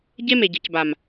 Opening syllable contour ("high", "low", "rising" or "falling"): high